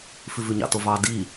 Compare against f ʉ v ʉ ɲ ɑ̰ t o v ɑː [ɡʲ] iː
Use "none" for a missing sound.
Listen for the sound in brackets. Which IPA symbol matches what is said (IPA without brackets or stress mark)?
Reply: d